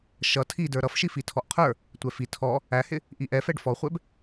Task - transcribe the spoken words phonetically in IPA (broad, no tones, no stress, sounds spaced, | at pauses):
ʃ ʌ tʰ i d ə˞ ɾ ʌ f ʃ i f i tʰ ɔ ʔ qʰ ə˞ | tʷ ɛ f i tʰ ɔ | æ h ɪ | ʔ i ʔ ɛ f ɛ ɖ f ɔ χʷ ɛ b